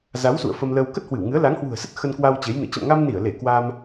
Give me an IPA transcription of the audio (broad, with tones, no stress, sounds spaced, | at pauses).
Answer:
z a˨˦ w s ṵ˧˨ ə̯ f ə˧ m l əː˧ w k ə˦˥ t̚ h w ɨ˧˩ w ŋ ɨ˨˦ ə̯ l a˨˦ ŋ h w ṳ˨˩ ə̯ s ə˦˥ t̚ x ə˧ n k w a˧ w t͡ɕ e˨˦ j n ɨ̰˧˨ t͡ɕ ə̰˧˨ m ŋ a˧ m n i˧˩ ə̯ l e˧˩ k w a˧ m